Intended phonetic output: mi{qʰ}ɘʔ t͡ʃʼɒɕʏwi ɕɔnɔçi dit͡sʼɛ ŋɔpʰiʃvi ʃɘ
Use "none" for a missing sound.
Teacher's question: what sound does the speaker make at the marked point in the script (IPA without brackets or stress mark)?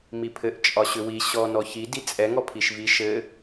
pʰ